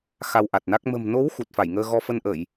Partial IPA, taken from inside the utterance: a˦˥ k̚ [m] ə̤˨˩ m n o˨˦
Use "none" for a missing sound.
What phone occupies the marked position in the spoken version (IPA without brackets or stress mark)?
m